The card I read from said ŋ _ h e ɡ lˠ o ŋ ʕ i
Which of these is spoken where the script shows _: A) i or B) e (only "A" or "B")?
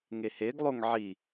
B